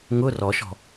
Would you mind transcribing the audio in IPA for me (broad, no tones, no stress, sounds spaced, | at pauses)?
ŋ ʊ r ɔ ʃ ɔ̤